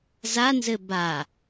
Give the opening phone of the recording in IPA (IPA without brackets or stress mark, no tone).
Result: z